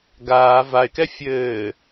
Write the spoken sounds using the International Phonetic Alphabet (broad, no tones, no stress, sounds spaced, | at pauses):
ɡ aː v a ɪ̯ k ɛ fʲ ɘː